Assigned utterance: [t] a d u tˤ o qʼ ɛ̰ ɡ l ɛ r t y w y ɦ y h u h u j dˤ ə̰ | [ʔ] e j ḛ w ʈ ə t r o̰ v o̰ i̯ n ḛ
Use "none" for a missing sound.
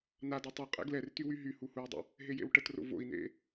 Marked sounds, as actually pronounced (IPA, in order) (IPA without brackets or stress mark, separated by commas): n, ɦ